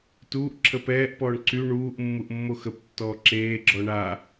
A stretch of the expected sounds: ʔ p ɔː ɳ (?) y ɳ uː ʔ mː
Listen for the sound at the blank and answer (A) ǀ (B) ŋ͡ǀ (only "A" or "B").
A